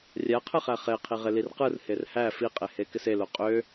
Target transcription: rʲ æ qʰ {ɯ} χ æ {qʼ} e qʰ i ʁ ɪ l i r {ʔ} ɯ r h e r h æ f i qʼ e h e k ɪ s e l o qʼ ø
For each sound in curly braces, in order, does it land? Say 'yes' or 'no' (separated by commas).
yes, no, no